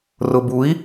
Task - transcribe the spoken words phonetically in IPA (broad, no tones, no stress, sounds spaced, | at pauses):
r ʊ b u i̯